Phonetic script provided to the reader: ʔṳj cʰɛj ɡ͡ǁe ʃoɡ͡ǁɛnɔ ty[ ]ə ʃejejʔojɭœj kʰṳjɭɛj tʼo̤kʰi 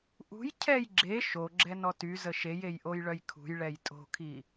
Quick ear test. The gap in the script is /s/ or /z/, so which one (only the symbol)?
z